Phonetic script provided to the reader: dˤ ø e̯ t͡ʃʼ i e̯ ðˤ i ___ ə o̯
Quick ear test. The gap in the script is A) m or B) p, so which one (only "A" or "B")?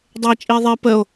B